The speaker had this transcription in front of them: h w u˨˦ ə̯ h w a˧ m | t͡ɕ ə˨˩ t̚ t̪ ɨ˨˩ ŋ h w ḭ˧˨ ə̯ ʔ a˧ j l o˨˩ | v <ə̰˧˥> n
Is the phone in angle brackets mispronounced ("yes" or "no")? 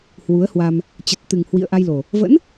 no